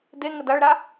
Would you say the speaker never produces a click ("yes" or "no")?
yes